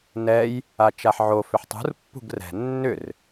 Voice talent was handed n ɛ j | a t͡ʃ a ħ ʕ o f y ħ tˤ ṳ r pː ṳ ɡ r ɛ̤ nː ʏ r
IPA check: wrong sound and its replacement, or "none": y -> ʏ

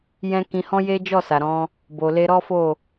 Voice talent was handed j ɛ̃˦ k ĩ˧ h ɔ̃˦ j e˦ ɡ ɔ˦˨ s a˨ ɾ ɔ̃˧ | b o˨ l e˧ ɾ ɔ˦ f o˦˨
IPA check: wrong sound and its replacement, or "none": ɡ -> d͡ʒ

